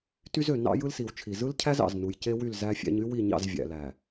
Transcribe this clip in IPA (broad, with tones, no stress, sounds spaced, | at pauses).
t y˦ z ø˨ n ɑ̰˦ j ɯ˦ l s i˨ w t͡ʃʰ i˨ z ɯ˦ l cʰ æ˦ z ɑ̰˨ z n u˨ j c e˦ w y˦˨ l z æ˦ fʲ æ̰˦ ɲ y˦ w i˦˨ ɲ ɑ̰˦˨ z vʲ æ̰˨ l æ˨